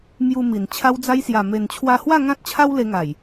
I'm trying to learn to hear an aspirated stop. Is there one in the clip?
yes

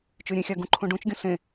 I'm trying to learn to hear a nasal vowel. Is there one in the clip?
yes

